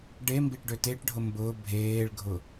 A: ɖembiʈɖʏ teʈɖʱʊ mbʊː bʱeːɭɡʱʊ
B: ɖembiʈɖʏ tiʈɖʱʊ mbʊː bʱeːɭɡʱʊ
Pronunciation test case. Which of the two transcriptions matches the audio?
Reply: A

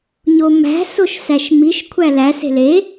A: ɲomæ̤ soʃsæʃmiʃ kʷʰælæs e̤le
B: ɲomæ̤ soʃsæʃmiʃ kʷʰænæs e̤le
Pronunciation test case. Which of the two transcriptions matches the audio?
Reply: A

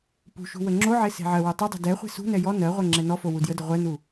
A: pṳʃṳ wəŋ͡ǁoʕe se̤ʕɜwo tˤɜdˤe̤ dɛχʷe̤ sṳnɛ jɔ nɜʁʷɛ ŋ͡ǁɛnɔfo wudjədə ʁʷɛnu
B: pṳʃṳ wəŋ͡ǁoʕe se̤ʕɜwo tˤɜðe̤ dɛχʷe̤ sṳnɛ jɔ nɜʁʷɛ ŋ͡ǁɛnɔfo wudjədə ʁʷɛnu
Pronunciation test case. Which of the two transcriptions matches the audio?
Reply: A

